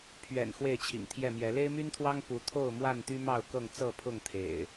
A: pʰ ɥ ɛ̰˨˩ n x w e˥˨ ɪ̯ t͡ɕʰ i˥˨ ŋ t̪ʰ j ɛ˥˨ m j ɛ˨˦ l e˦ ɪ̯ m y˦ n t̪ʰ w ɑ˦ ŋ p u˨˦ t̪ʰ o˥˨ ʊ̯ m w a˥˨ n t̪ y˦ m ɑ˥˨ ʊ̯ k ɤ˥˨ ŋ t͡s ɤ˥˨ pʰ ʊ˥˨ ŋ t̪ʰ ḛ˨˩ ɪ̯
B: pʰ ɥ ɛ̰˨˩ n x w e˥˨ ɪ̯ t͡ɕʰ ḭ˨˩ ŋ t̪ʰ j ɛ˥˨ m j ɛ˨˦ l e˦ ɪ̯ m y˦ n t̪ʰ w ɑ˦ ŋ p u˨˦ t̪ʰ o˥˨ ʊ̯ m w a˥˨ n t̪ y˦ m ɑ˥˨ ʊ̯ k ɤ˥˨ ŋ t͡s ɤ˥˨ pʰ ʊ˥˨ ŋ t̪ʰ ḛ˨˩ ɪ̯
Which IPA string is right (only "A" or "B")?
B